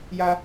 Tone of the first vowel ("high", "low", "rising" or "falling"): high